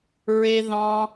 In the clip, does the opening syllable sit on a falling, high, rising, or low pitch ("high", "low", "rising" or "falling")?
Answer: high